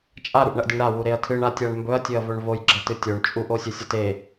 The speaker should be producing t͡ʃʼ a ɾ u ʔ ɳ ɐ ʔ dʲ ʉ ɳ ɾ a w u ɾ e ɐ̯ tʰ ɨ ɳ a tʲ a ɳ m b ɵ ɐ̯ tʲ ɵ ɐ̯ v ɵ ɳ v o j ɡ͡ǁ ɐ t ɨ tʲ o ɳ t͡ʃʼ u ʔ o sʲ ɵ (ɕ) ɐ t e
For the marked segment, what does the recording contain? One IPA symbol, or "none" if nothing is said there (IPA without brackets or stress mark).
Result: sʲ